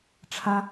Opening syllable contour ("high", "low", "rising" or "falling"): high